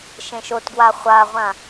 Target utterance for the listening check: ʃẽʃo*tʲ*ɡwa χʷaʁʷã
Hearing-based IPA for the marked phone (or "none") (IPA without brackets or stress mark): t